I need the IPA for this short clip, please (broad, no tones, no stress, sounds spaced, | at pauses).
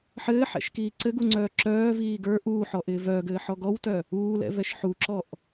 ħ ɘː ħ ɛ̰ ʃ k iː ǀ ɘ ɡ u ŋ͡ǀ œː ǁ œː v iː ɡ ə˞ ʔ uː ħ ɔ ʔ ɪː v œː ɡ ɘː ħ ɔ ɡ ɔ w t œ | uː l ɛ̰ v ɛ ʃ ħ u ǁ ɔ ʔ